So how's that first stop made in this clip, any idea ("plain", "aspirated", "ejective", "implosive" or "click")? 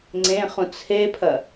click